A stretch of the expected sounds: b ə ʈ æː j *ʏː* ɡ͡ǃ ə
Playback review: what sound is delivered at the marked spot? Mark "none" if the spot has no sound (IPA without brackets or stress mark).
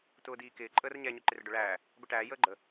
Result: əː